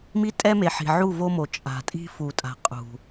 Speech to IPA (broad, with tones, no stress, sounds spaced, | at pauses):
m i˦ tʼ ɛ˦ m e˨ ħ i̤˨ ʕ u˦˨ v o˦ m o˨ t͡ʃʼ a̤˨ tʼ i̤˦ f u˨ tʼ a̤˨ qʼ ṳ˨